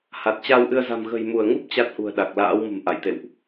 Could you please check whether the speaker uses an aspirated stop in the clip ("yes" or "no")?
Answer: no